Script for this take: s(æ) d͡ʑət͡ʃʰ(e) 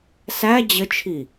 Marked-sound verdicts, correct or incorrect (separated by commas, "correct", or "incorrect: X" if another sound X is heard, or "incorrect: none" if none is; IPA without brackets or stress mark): correct, incorrect: i